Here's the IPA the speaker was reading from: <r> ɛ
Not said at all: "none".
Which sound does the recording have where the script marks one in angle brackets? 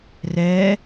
r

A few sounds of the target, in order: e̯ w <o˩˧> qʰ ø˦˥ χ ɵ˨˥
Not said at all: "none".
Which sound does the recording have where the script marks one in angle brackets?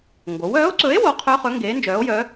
o˨˥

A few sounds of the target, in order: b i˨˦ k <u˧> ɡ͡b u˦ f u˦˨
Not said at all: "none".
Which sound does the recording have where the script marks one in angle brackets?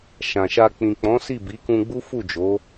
ũ˧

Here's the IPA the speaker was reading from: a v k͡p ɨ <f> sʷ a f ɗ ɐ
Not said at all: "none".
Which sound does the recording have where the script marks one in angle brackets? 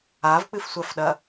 f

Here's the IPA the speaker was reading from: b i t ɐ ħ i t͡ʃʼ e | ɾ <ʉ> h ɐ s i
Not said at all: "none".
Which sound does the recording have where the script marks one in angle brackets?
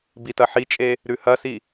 ʉ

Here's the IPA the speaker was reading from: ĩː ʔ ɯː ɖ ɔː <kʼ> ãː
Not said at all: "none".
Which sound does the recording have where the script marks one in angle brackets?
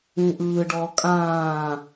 kʼ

